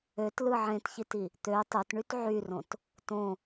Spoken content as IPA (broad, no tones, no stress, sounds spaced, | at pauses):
ø t l ɯ ʕ ẽ t ç i t i | t̪ ø tˤ ø t ɳ y t ʕ y r õ t | t õ